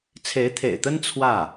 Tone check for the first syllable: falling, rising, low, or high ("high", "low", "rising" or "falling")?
rising